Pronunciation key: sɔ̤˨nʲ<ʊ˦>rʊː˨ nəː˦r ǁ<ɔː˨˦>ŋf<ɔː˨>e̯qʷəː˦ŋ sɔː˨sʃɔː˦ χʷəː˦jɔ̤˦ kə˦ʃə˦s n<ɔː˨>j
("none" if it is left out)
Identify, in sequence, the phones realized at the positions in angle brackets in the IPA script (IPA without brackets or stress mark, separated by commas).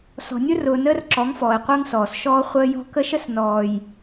ʊ˦, ɔ˨˦, ɔː˨, ɔː˨